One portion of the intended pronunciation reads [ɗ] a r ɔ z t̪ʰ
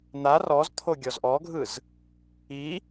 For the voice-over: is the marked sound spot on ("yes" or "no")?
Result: no